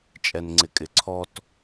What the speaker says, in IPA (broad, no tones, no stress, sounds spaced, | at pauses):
t͡ʃʼ ɛ n ŋ͡ǀ ɪ kʼ ɪ ǀʰ ɔ t